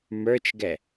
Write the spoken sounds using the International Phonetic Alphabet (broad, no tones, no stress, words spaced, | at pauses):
mə˞t͡ʃɡɛ